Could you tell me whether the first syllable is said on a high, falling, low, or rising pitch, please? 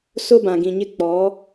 high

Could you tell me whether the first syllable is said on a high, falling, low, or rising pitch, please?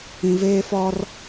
low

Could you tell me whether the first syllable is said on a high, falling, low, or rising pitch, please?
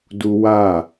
high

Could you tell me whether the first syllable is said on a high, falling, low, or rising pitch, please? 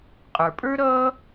low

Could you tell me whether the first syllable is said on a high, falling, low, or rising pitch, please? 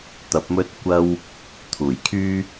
rising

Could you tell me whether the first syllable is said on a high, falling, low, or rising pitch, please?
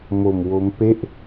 low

